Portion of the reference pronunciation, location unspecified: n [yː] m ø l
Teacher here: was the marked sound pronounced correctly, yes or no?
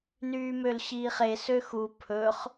yes